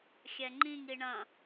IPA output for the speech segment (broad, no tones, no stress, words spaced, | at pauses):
xʲɛŋ͡ǃĩŋ iɳɐ̃